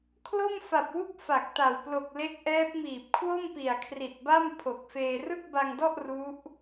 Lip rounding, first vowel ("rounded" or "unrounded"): rounded